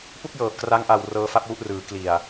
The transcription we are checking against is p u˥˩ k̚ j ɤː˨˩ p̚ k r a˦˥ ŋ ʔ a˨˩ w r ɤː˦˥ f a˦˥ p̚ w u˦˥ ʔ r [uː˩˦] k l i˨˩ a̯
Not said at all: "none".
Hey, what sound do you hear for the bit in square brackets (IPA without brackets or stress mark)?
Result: ɯː˩˦